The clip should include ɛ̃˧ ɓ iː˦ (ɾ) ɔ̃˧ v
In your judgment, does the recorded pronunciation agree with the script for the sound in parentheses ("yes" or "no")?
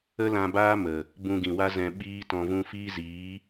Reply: no